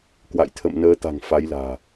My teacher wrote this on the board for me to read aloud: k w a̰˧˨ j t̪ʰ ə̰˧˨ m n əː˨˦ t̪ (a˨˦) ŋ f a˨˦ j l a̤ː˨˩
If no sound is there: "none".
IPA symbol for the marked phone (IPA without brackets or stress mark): a̤˨˩